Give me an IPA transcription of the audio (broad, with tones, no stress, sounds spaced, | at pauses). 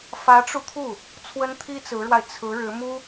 f ä˧˥ ʈ͡ʂ u˧ t̪ʰ u˥˩ | t͡sʰ w ə˥ n t̪ʰ i˥ t͡s ɹ̩˧˥ ɻ w a˧ ɪ̯ t͡sʰ ɹ̩˧˥ ɻ ɻ̩˧˥ m u˥